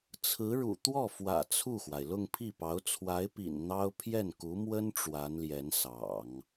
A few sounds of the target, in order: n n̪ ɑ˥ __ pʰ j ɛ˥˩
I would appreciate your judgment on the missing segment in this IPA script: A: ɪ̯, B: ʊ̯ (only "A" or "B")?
B